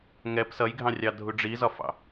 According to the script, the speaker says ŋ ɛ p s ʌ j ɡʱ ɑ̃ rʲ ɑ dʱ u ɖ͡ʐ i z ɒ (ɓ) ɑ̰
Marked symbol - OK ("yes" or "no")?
no